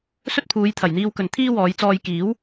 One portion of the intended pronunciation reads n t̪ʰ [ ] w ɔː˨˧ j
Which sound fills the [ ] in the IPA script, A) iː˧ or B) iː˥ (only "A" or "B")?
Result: B